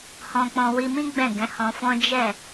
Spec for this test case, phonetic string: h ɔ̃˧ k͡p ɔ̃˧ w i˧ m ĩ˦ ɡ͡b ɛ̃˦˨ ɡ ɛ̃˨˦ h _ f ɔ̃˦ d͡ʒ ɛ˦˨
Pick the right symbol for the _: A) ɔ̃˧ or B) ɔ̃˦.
A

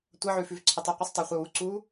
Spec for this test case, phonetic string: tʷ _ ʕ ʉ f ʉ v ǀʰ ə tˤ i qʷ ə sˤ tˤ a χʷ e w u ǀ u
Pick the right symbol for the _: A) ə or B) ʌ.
B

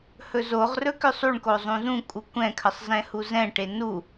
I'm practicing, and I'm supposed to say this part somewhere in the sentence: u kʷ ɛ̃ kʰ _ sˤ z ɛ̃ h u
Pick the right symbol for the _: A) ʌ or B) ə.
B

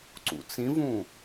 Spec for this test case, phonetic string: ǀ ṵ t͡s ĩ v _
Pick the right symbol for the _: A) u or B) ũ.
B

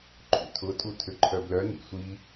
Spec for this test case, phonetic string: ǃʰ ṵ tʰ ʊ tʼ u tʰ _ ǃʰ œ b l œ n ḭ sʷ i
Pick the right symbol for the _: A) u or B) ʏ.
B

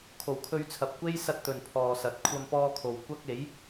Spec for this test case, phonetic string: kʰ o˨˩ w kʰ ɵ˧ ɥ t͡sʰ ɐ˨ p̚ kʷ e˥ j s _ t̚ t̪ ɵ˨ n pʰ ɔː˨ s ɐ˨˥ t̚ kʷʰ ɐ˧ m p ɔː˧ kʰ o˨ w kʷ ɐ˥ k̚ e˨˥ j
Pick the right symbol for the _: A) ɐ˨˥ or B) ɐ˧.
B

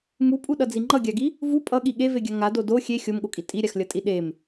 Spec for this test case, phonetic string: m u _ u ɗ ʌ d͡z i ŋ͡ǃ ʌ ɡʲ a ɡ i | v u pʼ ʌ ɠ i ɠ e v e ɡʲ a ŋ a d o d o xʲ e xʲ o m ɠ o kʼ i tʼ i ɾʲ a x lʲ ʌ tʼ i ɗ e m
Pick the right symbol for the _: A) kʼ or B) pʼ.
B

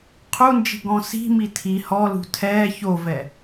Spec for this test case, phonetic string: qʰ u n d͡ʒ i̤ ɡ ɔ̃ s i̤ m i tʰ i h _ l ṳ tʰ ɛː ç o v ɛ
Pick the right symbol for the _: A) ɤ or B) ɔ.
B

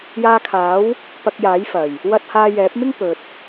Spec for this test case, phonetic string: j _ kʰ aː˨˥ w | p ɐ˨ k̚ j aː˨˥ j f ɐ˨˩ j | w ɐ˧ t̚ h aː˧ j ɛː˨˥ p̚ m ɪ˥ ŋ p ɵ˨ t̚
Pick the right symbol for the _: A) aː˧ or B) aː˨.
A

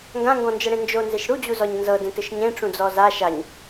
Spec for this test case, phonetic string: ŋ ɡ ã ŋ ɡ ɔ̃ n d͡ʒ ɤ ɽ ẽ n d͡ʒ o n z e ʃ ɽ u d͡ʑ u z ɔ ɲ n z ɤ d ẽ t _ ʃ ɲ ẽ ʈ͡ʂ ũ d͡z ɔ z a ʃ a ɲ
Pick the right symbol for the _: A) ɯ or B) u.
A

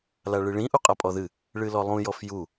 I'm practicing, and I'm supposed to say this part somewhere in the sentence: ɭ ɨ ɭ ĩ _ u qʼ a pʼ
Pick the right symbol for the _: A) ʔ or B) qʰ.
A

